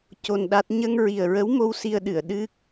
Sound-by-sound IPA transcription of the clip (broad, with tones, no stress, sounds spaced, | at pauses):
c o˧ n ɗ a˦˥ t̚ ɲ ə˧ ŋ ɹ i˨˩ ə̯ ɹ ə˧˥ w m o˧ w s i˧ ə̯ ɗ ɨ˨˩˨ ə̯ ɗ ɨ˦˥ k̚